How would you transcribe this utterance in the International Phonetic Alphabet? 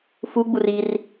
f u ɡ͡b u r i r

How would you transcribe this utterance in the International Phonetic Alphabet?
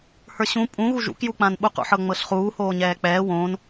h ə˞ ɕ ũ pʼ ũ ɣ u ʒ ṵ k j u k͡p ã n ɓ u q ṵ ħ ɤ ŋ͡m ɤ ɬ χ uː h oː ɲ ɛː k͡p ɛː w õ n

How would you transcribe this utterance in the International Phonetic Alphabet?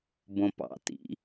b õ p ɑ̰ t ḭ

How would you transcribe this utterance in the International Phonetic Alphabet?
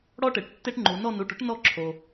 ɽ ɔ˦ ʈ e˩ ʈ tː e˦ ʈ ŋ͡ǃ u˩˧ n ɔ˦˨ n u˩˧˩ ʈ ʊ˦ ʈ n ɔ˦˨ ǁʰ o˩

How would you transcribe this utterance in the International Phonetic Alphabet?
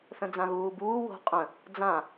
θ ə̃ d͡z ã ɣ uː b uː w o̤ qʼ ə̃ | d͡z ã

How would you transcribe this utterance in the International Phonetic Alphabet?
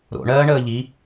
ɾ o̰ ɳ ɜː ɳ əː ʎ i

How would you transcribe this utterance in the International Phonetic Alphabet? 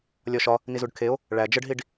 lʲ ɒ ʃ ɒ | n i z u ɖ kʰ e o̯ | ɭ æ d͡ʒ ə ɖ ɦ i ɖ

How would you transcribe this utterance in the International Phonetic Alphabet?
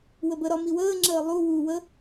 w ə b ə ɾ ɒ m i w əː ŋ͡ǁ əː lˠ u w u w ə

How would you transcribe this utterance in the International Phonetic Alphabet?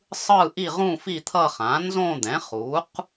sˤ ɯː˥˧ ʔ i˥˧ ʁ ũ˥˧ f i˥˧ t̪ʰ ʌː˥˧ χ ã˩˥ n z õ˥˧ d̪ ɛ̃˩˥ χ uː˩˥ q

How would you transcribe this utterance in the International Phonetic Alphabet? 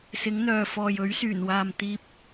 s ɪ˨˥ ŋ n̪ œː˨ f ɔː˨ j ɵ˨˥ ɥ s yː˨˩ n w aː˨ m t̪ iː˧ p̚

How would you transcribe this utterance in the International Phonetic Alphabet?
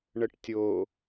ɳ ə ʈ tʲ o

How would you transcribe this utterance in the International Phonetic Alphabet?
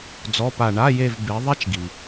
d͡z ɔ˧˥˧ p a˦˨ ɳ a˧˥˧ j e˦˨ v b e˨˥ ðˤ ɛ˥ t͡ʃ ɡ i˨

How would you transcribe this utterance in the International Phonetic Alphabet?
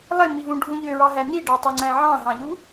lˠ e m i v ũ ɖʱ ũ ʎ ø ɹ ɑ ɦ æ n i ɖ ɑ tˤ o ŋ͡ǀ æ̃ ʕ ɑ̃ ɦ ɑ̃ ʎ u

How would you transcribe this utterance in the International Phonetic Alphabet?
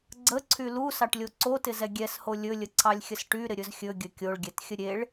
ɡ͡ǀ ə ǀʰ y l u s ɑ ʈ lʲ o ǀ o t ɪ z ɛ ɡʲ ɛ s h o lʲ ɵ lʲ ə ǀʰ ɑ lʲ xʲ ə s ʈ y ɾ ɪ ɾʲ ɵ z xʲ ɵ ɡʲ ɵ kʲ o ɭ ɡʲ ɛ t xʲ ə ɾʲ e ɭ

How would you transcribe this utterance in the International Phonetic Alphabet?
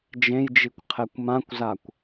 d͡ʒ ẽ j d͡ʒ i kʷ qʰ ɛ kʷ m ã kʷ z a kʷ

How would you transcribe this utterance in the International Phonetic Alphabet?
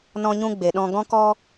n ɔ̃˦ ɲ ũ˦ ɡ͡b e˨ ɗ ɔ̃˧ ɡ ɔ̃˦ k ɔ˦

